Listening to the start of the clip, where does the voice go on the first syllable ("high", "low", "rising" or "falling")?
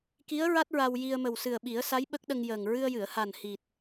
rising